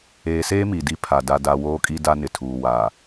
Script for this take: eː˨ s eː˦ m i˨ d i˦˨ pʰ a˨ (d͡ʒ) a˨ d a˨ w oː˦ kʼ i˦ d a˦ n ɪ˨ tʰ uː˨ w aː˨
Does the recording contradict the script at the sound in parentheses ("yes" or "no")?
yes